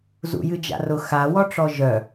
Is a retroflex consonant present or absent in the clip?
present